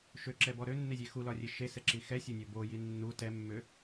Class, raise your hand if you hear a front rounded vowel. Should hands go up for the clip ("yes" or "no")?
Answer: yes